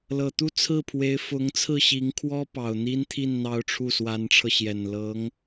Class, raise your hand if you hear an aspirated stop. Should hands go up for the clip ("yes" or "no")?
yes